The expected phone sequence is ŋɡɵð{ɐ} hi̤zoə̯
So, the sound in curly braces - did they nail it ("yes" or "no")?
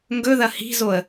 yes